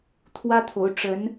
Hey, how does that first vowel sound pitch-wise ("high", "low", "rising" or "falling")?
high